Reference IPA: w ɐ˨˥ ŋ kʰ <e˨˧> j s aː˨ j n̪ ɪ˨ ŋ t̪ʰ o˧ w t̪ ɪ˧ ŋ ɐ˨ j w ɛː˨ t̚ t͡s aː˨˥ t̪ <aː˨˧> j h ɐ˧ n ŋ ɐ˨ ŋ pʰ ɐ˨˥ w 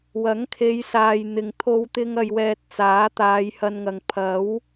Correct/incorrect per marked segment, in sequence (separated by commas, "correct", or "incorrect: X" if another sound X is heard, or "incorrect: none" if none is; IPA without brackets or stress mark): correct, correct